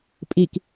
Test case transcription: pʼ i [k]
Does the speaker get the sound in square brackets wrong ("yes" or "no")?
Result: no